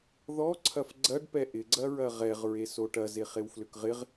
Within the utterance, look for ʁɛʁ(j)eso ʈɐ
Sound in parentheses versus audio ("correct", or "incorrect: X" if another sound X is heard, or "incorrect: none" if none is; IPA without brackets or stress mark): incorrect: ɹ